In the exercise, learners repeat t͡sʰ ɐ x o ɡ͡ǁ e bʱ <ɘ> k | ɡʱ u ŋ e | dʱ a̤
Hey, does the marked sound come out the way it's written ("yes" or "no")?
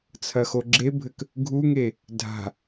yes